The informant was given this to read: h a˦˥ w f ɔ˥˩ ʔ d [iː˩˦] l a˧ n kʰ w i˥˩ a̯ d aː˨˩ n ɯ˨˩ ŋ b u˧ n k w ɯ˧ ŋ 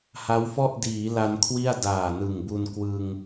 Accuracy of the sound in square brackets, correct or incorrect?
correct